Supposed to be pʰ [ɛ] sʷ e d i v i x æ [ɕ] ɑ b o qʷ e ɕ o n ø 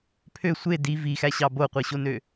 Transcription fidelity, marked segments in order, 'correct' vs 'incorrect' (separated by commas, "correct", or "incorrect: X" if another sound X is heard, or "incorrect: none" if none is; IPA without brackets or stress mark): incorrect: ø, correct